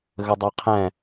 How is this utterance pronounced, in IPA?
ɣ ə dˤ ɜ qʰ ɛ̃

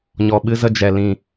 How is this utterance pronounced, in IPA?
ɲ ɔ˨ ɓ ɨ˧ z ə˧ d͡ʒ ɛ˨ l ĩ˨

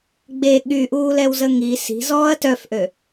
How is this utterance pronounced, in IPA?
ɡ͡b e ɠ y ʔ uː l ɛ w z ə ŋ i s i̤ z ɔː ɐ̯ t œ f ʔ ø

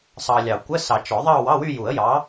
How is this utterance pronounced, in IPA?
sˤ ɑ˨ lʲ ɑ˨˩˦ kʷ ə˧˥˧ s ɑ˨˩˦ t͡ʃ ɔ˨˩˦ ðˤ ɑ˥˧ w ɑ˧˥˧ w y˥˧ j u˨˩˦ ə̯ j ɑ˨˥

